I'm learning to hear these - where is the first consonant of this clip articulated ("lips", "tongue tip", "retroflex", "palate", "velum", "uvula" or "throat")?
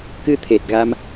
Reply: velum